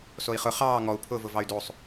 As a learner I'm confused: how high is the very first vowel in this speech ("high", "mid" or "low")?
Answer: mid